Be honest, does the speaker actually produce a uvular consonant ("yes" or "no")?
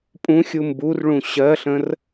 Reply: no